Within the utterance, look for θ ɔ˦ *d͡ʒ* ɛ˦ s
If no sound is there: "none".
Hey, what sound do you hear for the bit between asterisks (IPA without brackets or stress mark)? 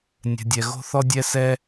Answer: dʲ